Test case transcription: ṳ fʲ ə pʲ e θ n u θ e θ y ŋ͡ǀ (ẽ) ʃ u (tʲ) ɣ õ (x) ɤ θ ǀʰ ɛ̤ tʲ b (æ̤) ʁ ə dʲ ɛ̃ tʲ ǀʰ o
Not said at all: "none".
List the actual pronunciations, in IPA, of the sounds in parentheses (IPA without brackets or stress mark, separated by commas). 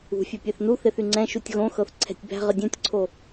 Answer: ɛ̃, tʲ, x, æ̤